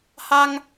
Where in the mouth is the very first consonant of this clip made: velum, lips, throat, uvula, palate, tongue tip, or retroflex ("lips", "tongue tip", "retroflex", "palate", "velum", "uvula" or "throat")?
throat